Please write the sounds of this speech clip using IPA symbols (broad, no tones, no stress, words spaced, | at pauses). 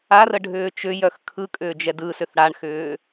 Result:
arəɖʱʏː t͡ʃʏjœx kʰɯkʼʏːd͡ʒɛ dɯsʏθ ɽaɳxʏː